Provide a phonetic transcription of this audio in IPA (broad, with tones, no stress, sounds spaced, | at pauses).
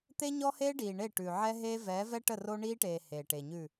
t̪ e˦ ɲ ɔ˦ h eː˦ ɖ iː˨ ɳ e˦˨ ʈ ʉ˨ ʕ ɛ˦ ɦ eː˦ v ɛː˨˦ v ɛ˦ ʈ ə˦˨ r o˦ ɳ iː˦ ʈ eː˨ h eː˨ ʈ e˨ ɲ ʉ˦˨